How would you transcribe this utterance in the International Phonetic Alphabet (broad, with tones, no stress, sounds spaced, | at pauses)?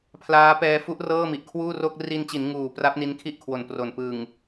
pʰ l aː˦˥ p ɛː˧ f u˦˥ ʔ r ɤː˥˩ m i˨˩ ʔ kʰ w uː˥˩ r o˥˩ k̚ r i˧ n t͡ɕ i˩˦ n ŋ uː˨˩ p r a˦˥ p̚ n i˧ n kʰ i˥˩ ʔ kʰ w o˨˩ n p r o˨˩ n p ɯ˨˩ ŋ